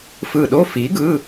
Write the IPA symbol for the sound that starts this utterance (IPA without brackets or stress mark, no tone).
f